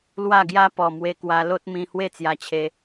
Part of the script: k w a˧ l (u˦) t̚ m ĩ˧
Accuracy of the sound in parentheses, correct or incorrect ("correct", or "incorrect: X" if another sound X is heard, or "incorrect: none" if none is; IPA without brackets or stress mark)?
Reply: incorrect: o˦